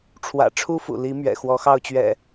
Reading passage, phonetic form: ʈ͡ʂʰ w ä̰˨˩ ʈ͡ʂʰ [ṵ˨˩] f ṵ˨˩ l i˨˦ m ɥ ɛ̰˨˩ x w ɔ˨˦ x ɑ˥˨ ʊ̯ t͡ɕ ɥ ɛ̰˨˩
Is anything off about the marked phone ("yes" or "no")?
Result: yes